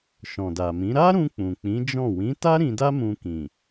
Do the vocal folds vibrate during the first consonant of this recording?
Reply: no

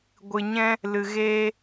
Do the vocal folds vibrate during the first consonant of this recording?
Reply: yes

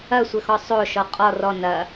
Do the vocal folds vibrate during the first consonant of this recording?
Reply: no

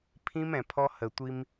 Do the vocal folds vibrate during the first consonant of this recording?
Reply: no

